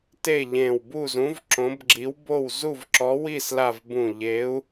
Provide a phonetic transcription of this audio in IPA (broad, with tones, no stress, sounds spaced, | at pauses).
t e˥˨ ʎ ẽ˧˩ w b u˥˨ z ũ˨˥ v ǁ õ˨˥ b ɡ͡ǁ i˨˥ w b o˥˨ w z u˥˨ v ǁ ɔ˨˥ w i˥˨ s l a˧˩ v b ũ˧˩ ʎ e˨˥ u̯